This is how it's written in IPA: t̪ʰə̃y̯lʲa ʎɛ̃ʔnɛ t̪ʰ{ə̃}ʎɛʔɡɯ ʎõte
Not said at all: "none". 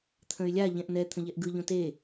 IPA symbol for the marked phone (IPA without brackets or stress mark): ə̃